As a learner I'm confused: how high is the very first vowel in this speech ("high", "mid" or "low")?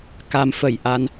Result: low